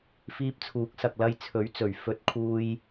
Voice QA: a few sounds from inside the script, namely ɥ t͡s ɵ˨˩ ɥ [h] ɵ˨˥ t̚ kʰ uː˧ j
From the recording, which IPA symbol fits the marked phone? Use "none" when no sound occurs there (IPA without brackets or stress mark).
f